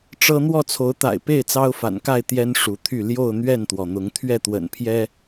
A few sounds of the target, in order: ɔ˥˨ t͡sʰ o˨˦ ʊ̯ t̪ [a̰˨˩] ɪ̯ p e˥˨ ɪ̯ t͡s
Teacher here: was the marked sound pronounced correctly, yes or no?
yes